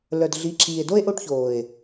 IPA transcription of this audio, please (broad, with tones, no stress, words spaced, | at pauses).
lœ˨dɮi˨˦ ǁʰiː˨e̯do˦e̯ ʔo˦ʈçoː˨e̯